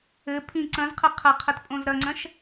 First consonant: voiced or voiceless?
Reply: voiceless